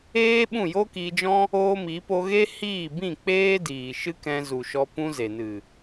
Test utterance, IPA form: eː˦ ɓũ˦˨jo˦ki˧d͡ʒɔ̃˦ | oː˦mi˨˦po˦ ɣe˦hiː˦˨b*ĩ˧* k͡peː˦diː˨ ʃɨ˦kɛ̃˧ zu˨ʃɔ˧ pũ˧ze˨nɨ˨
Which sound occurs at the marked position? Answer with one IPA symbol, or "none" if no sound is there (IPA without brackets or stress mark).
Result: ĩ˦˨